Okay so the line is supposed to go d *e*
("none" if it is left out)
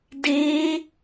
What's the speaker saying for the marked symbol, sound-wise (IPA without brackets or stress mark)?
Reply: e